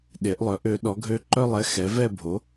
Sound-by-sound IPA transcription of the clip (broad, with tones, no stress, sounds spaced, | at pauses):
ɗ e˩˥ ʔ lˠ œ˩˥ ʔ ø˩˥ ɗ ɔ˩˥ ɡʱ ø˧˥ ǃ œ˥˨ lˠ ɛ˧˥ x ɛ˩˥ v ɛ˥˨ bʱ o˩˥